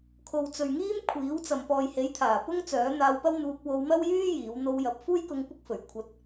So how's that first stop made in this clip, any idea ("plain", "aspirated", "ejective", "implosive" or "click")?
aspirated